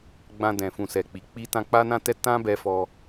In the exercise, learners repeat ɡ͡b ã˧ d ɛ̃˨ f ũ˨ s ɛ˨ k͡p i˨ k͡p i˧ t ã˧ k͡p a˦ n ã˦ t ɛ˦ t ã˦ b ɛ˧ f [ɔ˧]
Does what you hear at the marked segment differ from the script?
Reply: no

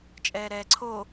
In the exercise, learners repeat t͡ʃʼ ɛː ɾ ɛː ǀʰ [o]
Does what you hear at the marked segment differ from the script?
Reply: no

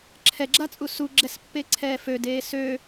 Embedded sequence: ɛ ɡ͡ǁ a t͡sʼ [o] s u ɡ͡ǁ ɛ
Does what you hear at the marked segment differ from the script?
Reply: yes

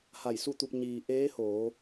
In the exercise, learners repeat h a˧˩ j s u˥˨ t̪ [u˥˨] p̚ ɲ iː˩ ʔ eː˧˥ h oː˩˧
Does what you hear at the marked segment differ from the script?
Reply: yes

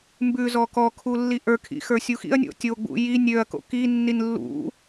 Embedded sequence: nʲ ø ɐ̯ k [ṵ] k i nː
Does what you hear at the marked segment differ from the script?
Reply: yes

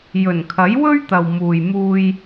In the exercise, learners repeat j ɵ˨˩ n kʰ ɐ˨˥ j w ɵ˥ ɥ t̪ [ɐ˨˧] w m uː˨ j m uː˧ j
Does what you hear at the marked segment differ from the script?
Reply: yes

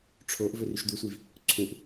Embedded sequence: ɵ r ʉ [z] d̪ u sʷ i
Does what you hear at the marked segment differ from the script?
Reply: yes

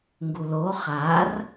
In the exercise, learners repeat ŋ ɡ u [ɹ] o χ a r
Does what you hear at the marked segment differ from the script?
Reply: yes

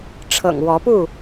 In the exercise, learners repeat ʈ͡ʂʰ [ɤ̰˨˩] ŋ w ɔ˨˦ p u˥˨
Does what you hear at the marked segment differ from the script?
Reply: no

